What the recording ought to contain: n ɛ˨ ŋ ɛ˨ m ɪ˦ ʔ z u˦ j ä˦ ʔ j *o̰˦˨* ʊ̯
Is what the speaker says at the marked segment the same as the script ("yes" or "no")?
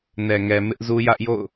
yes